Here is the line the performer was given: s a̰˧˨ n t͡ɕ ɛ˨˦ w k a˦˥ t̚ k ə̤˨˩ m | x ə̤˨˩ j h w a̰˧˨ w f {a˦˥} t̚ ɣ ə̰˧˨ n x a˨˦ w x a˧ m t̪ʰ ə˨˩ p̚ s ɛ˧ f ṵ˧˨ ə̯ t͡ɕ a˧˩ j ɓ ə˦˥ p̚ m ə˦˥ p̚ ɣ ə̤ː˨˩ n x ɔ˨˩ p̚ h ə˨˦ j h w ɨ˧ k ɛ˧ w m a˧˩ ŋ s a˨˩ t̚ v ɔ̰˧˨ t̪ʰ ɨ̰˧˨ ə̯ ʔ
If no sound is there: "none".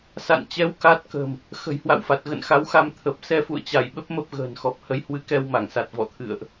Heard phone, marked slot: a˨˩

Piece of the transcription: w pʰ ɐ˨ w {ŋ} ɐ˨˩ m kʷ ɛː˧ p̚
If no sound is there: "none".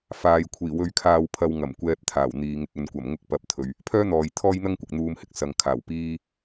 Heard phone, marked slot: ŋ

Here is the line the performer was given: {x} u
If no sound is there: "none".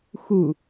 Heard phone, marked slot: x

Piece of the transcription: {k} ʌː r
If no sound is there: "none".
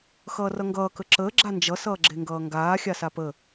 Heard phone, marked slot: x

